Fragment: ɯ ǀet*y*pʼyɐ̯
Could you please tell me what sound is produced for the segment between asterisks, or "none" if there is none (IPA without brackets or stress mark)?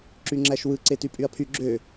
y